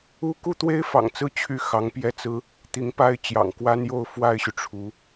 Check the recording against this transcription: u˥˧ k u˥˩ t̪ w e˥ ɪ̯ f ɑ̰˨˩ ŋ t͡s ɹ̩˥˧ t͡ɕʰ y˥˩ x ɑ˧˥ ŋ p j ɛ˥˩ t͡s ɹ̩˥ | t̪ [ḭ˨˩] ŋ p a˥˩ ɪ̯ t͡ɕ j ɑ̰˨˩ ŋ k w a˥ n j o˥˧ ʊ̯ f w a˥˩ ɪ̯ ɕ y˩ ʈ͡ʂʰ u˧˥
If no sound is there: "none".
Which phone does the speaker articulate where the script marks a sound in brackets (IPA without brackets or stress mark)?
i˧˥